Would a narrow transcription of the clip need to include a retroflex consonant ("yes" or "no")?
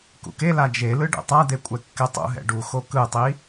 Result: yes